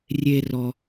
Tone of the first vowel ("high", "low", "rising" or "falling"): high